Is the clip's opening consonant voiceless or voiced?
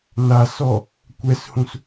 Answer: voiced